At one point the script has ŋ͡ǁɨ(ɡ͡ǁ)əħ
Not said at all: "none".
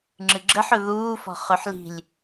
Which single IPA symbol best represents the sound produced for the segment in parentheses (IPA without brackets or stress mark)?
ɡ͡ǁ